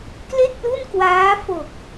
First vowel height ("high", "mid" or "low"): mid